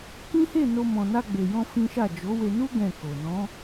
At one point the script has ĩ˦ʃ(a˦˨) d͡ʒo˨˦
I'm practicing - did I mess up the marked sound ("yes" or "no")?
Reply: no